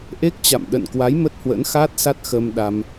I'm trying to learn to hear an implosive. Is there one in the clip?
yes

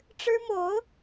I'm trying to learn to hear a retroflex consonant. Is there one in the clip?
yes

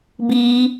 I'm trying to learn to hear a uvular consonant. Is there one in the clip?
no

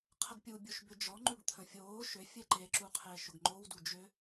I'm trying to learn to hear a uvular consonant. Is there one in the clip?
yes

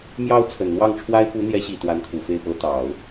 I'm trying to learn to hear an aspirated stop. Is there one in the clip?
yes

